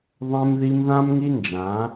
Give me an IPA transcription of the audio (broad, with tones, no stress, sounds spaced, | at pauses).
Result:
ðˤ ɛ̃˧ m ð i˧ m ð ã˦ m ŋ i˦ n d͡ʒ ã˨˦